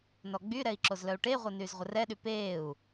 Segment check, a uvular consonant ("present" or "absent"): present